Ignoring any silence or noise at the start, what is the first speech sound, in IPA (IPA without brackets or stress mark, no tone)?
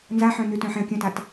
n